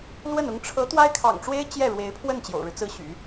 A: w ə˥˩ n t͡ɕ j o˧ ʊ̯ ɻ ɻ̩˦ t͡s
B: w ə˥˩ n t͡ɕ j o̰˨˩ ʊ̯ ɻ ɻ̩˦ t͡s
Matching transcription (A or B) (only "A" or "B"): B